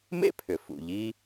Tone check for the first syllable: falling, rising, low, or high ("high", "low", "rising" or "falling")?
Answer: high